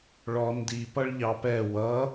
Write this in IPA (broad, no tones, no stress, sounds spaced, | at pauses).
ɭ ɔ n d i p ʌ ɭ ʎ ɑ p ɛ w ʌ